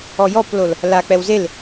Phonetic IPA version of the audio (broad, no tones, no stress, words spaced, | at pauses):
ɔjɔplol | lak͡pɛw zel